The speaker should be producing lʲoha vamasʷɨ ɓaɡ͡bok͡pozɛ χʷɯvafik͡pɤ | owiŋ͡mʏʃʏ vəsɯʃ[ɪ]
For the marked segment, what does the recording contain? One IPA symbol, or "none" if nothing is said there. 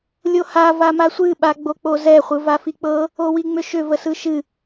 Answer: ɨ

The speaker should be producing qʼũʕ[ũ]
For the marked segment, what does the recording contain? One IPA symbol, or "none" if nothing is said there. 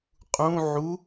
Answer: u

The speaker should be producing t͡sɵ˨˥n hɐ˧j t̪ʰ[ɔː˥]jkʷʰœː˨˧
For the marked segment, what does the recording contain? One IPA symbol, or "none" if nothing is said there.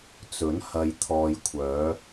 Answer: ɔː˨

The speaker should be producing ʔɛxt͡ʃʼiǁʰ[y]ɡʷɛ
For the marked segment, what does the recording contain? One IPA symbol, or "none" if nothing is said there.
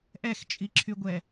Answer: y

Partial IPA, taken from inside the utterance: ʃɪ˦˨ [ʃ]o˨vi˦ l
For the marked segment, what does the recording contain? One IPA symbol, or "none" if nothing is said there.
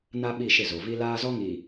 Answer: z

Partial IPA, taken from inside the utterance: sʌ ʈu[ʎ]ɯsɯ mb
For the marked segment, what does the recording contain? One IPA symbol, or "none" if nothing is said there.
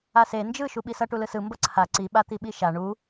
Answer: l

